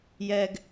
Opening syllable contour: high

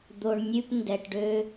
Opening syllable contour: low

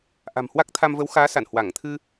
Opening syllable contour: low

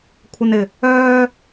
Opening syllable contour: high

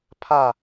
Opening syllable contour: falling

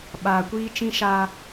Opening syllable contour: low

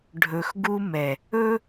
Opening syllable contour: low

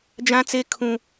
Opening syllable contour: high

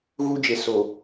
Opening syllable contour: high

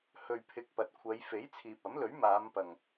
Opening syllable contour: low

